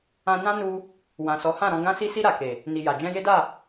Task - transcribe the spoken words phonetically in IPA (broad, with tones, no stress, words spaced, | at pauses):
ã˧ nã˦nu˧ | wã˨sɔ˨˦hã˦˨ɾɔ̃˧ ɡã˧si˧si˧ ɾa˨ke˨ | ni˨ ja˨d͡ʒɛ̃˧je˦da˦˨